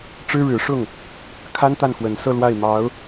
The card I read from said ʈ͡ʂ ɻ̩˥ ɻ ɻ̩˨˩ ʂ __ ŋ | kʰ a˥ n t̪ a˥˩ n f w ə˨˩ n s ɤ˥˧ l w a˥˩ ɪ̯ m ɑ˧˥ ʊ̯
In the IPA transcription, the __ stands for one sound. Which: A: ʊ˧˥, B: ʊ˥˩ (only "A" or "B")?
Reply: B